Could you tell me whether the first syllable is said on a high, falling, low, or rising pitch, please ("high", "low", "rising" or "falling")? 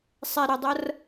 low